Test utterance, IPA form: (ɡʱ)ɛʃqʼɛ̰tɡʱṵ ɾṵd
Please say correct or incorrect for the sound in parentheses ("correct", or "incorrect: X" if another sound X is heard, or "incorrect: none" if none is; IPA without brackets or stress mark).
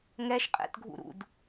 incorrect: ŋ